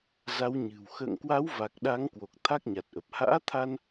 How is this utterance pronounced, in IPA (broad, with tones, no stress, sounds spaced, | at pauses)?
z a˨˦ w ɲ ɨ̤˨˩ w x ə̰ː˧˨ ŋ k w a˨˦ w v a˨˩ k̚ ɗ a˨˦ ŋ k w o˨˩ k̚ t̪ʰ a˦˥ k̚ ɲ a˨˩ t̚ ʔ ə˨˩ p̚ h a̰ː˧˥ t̪ʰ a˧ n